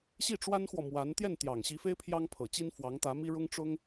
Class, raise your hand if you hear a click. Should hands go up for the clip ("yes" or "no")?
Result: no